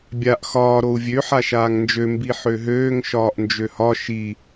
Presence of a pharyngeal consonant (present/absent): present